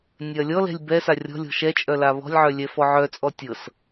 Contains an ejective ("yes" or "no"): yes